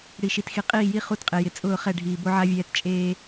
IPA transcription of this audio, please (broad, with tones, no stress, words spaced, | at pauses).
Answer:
ɽi˨ʃi˨txi˨ qʼiː˦˨ji˦ χu˦˨tqʼe˨jɪ˨ t͡sʼʊː˦˨χɛ˦˨ɖʱiː˨ bo˦ʕa˦vʲɛː˦t t͡ʃʼeː˦